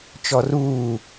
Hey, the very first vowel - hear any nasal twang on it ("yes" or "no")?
no